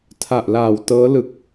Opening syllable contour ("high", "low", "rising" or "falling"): low